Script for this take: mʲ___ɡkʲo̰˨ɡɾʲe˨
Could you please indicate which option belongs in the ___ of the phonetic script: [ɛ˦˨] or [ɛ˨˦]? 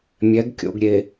ɛ˨˦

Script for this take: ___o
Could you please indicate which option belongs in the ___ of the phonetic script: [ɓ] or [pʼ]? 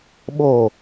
ɓ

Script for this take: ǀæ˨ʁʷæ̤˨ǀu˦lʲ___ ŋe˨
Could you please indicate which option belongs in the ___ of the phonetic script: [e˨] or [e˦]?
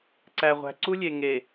e˨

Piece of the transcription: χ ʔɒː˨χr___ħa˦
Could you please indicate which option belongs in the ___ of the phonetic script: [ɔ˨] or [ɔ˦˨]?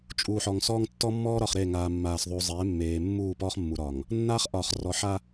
ɔ˨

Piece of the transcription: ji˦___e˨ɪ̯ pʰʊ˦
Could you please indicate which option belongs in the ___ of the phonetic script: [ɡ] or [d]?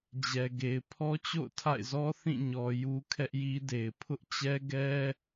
d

